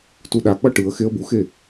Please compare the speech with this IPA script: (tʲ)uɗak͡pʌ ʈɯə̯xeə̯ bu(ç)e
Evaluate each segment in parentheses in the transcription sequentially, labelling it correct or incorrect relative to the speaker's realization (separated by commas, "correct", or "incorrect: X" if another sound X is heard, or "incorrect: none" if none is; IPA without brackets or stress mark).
incorrect: t, incorrect: x